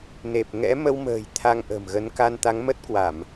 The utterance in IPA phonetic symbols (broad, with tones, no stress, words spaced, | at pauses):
ne˨˩p̚ŋɛ̰˧˥ mə˧wmə̤ː˨˩j t̪ʰa˧ŋʔə̤˨˩mɣə˨˦n ka˧nt̪a˨˦ŋmə˦˥t̚kwa˧˩˨m